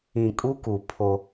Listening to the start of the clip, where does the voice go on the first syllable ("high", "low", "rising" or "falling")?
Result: low